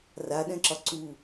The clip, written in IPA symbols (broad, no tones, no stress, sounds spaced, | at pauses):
r a ɗ ɛ̃ ǁ ɒ ǀ u